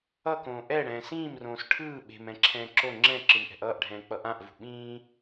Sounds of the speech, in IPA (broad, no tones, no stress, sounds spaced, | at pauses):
ʌ k õː ʔ ɛ ɽ ɛ̃ː s ĩː m r õː s ʈʰ ɯː ɓ e̤ m ɛ̃ ǁʰ ɛ̃ː ǁ o ŋ͡ǁ ɛ̃ ǁ ɯ m ʔ ɛ̤ ʔ ʌː ʔ ɖʱ ɛ̃ː k͡p ʌ ʔ ã ʔ v ṳ ɓ ĩː